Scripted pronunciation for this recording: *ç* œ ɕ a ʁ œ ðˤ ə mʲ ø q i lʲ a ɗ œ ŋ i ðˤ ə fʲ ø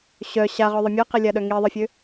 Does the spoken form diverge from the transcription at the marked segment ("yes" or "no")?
yes